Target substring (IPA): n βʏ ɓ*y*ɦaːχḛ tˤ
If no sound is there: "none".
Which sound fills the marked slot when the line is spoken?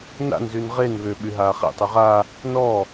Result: y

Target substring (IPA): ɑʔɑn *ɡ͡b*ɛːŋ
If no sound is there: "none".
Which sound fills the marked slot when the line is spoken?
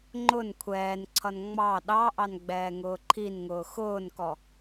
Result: ɡ͡b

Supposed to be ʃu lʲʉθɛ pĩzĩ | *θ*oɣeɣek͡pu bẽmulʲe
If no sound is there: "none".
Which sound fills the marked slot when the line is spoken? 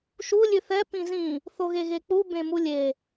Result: θ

